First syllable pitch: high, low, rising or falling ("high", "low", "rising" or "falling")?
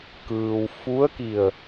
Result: low